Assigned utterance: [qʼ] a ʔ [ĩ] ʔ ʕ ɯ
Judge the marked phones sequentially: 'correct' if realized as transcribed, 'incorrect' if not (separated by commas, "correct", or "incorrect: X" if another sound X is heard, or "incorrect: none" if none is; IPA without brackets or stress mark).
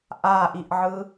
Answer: incorrect: ʔ, incorrect: i